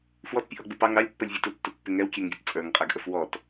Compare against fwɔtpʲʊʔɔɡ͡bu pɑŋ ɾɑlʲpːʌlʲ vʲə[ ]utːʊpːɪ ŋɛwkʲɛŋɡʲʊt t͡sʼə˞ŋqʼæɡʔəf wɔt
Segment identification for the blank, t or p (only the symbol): t